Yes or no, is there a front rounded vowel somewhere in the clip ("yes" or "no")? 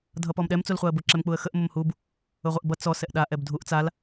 no